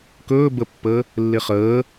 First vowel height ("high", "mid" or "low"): mid